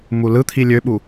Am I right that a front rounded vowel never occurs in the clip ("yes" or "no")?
no